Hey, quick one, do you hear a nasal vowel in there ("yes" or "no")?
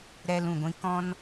yes